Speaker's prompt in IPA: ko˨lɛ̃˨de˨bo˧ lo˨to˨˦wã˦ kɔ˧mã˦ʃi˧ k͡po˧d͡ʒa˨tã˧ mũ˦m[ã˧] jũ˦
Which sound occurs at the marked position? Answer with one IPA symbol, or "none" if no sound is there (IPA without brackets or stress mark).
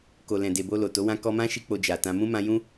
ã˧